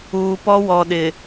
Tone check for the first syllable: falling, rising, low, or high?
low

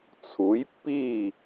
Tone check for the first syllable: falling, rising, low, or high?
rising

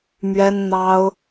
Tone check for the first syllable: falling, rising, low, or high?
high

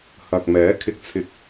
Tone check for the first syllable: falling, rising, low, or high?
low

